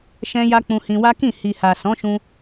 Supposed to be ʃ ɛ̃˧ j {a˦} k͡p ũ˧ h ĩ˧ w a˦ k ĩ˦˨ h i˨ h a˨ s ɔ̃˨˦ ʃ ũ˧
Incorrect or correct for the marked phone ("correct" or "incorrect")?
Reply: incorrect